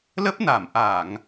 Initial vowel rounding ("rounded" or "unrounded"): unrounded